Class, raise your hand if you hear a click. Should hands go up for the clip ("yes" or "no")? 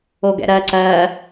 yes